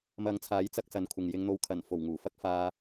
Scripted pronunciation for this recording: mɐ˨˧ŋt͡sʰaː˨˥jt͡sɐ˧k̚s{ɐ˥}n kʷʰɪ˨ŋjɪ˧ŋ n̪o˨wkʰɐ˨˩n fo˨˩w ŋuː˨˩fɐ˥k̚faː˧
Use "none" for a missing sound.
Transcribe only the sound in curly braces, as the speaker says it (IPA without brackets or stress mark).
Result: ɐ˨